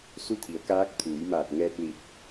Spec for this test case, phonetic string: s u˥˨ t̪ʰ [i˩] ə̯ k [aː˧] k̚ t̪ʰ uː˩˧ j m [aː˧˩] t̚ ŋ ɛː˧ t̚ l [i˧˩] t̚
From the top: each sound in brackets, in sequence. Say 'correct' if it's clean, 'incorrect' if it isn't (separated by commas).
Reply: incorrect, incorrect, correct, correct